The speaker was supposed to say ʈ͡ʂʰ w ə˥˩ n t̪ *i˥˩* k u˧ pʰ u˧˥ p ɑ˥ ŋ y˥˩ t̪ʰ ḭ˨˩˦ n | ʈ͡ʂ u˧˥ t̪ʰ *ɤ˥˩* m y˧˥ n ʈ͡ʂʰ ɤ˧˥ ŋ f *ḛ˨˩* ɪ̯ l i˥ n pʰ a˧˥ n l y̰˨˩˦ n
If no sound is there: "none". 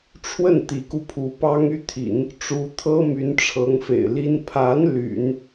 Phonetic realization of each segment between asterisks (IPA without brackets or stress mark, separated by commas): i˧˥, ɤ˥, ḛ˨˩